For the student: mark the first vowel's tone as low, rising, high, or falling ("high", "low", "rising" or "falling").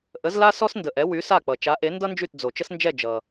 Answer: rising